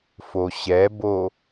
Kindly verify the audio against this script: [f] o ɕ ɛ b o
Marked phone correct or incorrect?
correct